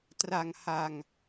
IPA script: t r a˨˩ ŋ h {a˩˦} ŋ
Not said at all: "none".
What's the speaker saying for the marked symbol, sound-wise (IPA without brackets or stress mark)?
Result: a˨˩